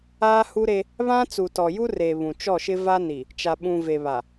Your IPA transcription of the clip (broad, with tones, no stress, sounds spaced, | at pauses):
aː˦ h u˦ ɾ e˦ | β ã˦ t͡s u˨ t ɔ˨ j u˦ r e˨ β ũ˨ t͡ʃ ɔ˦˨ ʃ ɪ˦ v a˦ n i˨ | t͡ʃ a˨ ɓ ũ˨ v e˨ β a˨